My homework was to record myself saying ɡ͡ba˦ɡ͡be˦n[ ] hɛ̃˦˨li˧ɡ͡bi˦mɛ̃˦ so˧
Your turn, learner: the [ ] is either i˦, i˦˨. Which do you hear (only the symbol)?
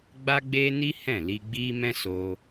i˦